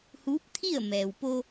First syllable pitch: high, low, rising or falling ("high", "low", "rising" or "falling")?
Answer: rising